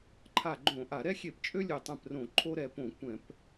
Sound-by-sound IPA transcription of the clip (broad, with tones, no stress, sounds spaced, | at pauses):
ǃʰ a˧˩ ɡ͡ǃ õ˧˩˧ ʔ a˧˩˧ ɾ ɛ˦ xʲ e˧˩˧ p t͡ʃʼ ø˦ lʲ ø˧˩ tˤ ɛ̃˧˩ p r õ˧˩˧ ǃʰ o˦ ɾ ɛ˧˩ p õ˧˩˧ kʷ ɛ̃˧˩˧ p